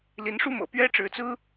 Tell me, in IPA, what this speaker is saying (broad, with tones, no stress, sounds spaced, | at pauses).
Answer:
l i˧˥ n ʂ u˥ m ɤ̰˨˩ p ɥ ɛ˥ ʈ͡ʂ ɻ̩˧˥ t͡s ɹ̩˥